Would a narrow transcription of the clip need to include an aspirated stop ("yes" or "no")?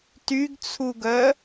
yes